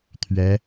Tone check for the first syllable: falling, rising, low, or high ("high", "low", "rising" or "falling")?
rising